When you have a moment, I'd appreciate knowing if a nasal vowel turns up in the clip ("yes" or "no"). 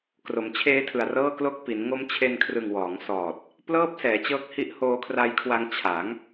no